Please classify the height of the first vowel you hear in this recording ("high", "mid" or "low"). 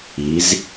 high